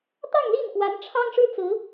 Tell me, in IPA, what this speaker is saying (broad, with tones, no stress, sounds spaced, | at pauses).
t̪ ɑ˥˧ ŋ l i˥˩ n k w a˧˥ n ʈ͡ʂʰ ɑ˥ ŋ ʂ ɻ̩˥ t͡s ɹ̩˧˥